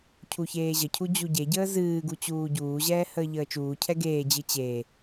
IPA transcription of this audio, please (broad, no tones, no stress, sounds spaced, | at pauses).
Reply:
cʰ u ç eː ʑ ə cʰ u d͡ʑ u ɟ e ɟ əː z ɨː ɡ u t͡ɕ uː ɟ uː ʑ ɛː h əː ʎ əː t͡ʃ uː cʰ ɛ ɡ eː d͡ʑ ɨ t͡ɕ eː